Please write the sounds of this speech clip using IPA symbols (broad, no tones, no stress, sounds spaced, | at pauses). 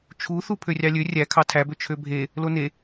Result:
t͡ʃʰ u θ u pʰ ø rʲ ɑ lʲ ø rʲ æ kʰ ɑ tʰ æ b ø t͡ʃʰ ø bʱ e | l o n e